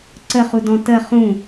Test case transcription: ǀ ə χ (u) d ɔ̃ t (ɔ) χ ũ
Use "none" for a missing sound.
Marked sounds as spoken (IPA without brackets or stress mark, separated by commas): u, ə